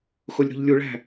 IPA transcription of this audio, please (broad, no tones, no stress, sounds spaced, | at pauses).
x o lʲ ɾ o̤ ʎ lʲ u ɭ æ̤